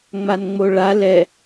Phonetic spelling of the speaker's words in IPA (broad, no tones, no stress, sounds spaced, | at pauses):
ŋ͡m a n ŋ͡m o ɭ a l ɛ